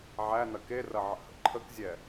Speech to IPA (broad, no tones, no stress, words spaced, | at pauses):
ʕænɐ kerɐʕə̰hə̰ ǃʰəkzʲɛ